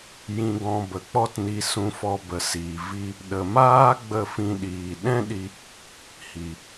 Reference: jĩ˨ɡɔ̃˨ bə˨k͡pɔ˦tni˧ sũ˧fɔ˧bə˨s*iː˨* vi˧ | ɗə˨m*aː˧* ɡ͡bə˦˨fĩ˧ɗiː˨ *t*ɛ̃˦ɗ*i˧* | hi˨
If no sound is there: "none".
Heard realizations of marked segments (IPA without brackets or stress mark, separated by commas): iː˨, aː˦, ɗ, i˧